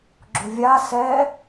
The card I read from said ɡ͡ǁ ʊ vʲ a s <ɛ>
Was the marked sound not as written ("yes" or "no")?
no